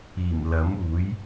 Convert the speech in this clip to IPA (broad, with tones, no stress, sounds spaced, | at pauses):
iː˨˩ m l ɐ˨˥ m uː˨˥ j